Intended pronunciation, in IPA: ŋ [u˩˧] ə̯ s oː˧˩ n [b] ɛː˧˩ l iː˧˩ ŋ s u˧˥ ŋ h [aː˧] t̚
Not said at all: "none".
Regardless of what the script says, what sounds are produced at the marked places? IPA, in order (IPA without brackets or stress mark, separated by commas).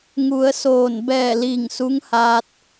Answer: u˩˧, b, aː˧